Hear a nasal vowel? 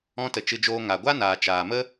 yes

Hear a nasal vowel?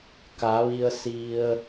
no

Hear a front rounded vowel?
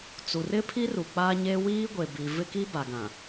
no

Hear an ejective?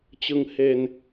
no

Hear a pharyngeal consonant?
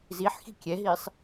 yes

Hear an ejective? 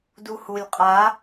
yes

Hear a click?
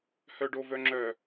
yes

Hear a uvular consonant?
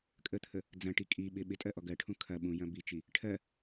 no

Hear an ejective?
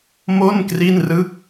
no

